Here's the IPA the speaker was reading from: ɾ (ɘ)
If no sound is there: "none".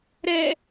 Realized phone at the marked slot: ɛ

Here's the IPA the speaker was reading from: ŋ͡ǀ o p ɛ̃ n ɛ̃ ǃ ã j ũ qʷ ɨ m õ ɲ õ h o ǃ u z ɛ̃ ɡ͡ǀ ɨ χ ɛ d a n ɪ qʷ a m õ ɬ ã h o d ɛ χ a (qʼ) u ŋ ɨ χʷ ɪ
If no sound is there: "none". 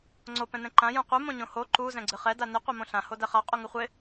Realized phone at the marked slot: qʼ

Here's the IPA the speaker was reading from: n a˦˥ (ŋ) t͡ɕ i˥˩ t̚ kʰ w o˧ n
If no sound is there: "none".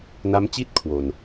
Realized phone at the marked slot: m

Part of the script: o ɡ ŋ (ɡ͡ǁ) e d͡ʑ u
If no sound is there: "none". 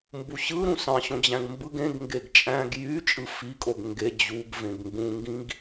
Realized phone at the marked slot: ɡ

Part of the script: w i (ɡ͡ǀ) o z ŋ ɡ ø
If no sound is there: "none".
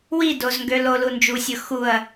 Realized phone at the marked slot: d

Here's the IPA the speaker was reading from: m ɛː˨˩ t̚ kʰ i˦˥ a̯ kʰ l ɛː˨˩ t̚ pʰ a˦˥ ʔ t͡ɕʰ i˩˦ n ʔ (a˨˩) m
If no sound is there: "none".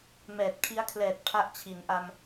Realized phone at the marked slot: a˧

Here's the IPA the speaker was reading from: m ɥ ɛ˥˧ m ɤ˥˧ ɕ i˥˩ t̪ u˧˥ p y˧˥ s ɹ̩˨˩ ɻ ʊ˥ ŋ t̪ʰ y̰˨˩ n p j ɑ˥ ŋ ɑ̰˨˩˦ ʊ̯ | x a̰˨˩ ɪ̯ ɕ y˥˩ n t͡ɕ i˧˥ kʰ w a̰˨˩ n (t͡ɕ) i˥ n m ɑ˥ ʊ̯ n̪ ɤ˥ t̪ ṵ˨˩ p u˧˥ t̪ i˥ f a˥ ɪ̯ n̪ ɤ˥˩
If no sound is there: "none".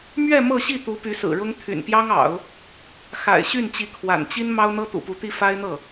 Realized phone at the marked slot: t͡ɕ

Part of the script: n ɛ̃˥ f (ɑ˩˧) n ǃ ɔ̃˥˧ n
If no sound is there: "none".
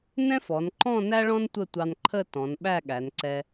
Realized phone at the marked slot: ɔ˩˧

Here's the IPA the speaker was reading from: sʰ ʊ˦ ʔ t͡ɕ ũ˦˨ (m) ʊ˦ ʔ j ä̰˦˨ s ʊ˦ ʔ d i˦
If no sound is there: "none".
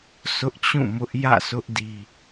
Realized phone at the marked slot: m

